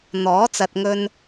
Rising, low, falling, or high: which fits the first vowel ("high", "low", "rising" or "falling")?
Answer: rising